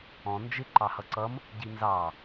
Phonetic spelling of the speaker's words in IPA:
ɔ̃ nd͡ʒɪ ǃɑhʌǀʌm | ɟinzɑ

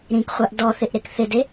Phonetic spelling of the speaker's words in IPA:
ɾĩkχʷaʔ dɔθɪʔɾek θɪde

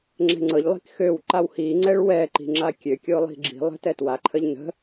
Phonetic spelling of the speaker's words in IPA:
ŋ͡ǁɛ̤ŋ͡ǀɤʎlˠi̤k xøw ǃawhiŋ͡ǀɛɭ wɛ ǃi̤ŋ͡ǁakʲøkʲo lˠi̤ɡ͡ǁi̤lˠə̤ tɛtwaǃʰəʎ nə̤

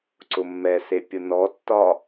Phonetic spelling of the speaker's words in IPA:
ǀʊmːɛse pʲʊnɔtːɒ

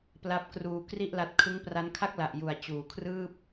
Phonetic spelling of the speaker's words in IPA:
pla˦˥p̚kruː˧ kri˥˩ʔla˦˥t̚ kʰɯ˦˥ŋpra˦˥nkʰa˥˩k̚la˨˩ʔ ju˨˩a̯t͡ɕuː˨˩kʰrɯː˥˩p̚

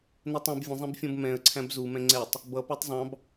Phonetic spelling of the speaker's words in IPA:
nɜtˤɛ̃b vʲə̃zˤɛ̃bfʲɔ̃b mɛ̃ə̯ ǀʰæ̃bzumɛ̃ ŋ͡ǀɛtˤ | bʌ pætˤzˤɑ̃b

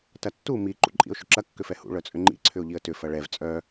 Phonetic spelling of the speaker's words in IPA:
tɐtːu mi ǃṵǃʼḭʊ̯ʃʏǁɐ kːʏfɛhṵ ɭœt͡sʼʏŋ͡ǃḭ ǀʰʏʊ̯ʎiə̯tʏ fɐɭɛv t͡sʼœ

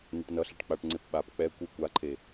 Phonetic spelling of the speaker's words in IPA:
nɛʈnʌɬɛʈ k͡paʈŋ͡ǀep ɓap k͡pɛ kʷɯ kʷaǃʰe

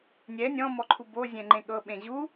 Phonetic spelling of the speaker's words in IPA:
nʲɛ nʲɔ̃mɔǃʰu bozʲɛ̃ŋ͡ǃẽ ɠɤɓẽ ʑu

